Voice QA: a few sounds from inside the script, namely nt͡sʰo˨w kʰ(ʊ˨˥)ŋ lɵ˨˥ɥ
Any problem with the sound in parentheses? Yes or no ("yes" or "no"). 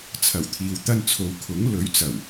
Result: no